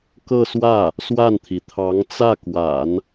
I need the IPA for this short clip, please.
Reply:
k ɤ˥˧ s w ä˥˩ | s w a˥˩ n t̪ʰ i˩ t̪ʰ ɑ˧˥ ŋ t͡s ä˥˩ k w a̰˨˩˦ n

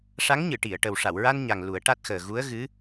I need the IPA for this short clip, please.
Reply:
ʂ a˧˥ ŋ ɲ ɨ˨˩˨ ʈ i˨˩˨ ə̯ ʈ ə˨˩ w ʂ a˨˩˨ w ɹ a˧ n ɲ a˨˩ ŋ l u˨˩˦ ə̯ ʈ a˦˥ t̚ x əː˨˩ ɣ u˧˥ ə̯ ɣ ɨ˧˥

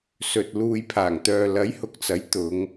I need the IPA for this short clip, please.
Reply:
s ɵ˨ t̚ l uː˨ j pʰ aː˨˩ ŋ t̪ œː˨ l ɐ˨˥ j h ʊ˨ k̚ t͡s ɐ˨˥ j t̪ ʊ˨˧ ŋ

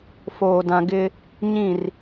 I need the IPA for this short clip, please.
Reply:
f oː˨ d ã˨ ɡ ɪ˦ | ɲ ĩ˦˨ r

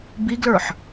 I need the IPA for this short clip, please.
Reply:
b i ɡ l ə˞ ħ

